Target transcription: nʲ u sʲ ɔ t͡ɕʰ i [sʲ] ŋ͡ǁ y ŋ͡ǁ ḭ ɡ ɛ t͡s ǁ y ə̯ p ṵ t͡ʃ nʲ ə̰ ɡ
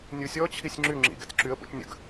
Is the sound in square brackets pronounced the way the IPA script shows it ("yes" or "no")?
yes